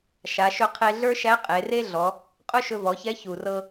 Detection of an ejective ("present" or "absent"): present